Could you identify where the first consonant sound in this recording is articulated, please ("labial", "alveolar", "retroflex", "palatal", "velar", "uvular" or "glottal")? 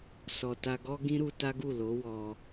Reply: alveolar